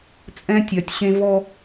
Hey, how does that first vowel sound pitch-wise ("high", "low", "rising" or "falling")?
high